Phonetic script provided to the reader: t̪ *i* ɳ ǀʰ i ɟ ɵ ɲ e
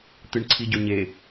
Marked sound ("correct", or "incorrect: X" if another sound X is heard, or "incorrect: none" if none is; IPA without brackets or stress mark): incorrect: ɨ